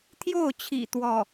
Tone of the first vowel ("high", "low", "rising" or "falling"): falling